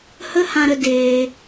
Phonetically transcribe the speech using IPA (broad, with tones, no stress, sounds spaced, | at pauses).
h ə˦ h ã˧ ɾ ə˧ d eː˧